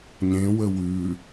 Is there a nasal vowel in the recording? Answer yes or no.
yes